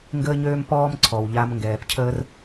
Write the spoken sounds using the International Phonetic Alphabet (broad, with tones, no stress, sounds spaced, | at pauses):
ŋ ɡ əː˦ ɲ øː˦ m p ɔː˦ m ǀʰ ɔ˨ w ʎ a˧ m ŋ ɡ ɛː˨ p cʰ əː˦ r